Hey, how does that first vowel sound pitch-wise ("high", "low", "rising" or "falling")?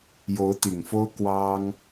rising